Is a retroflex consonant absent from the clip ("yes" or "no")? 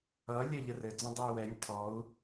yes